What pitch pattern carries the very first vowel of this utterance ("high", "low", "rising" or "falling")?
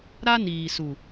high